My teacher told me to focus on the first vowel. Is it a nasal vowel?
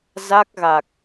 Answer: no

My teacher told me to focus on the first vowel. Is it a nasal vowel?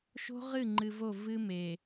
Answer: no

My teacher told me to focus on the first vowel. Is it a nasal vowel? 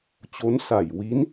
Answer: no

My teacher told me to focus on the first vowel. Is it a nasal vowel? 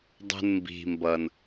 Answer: no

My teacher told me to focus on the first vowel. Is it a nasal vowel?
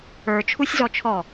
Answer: no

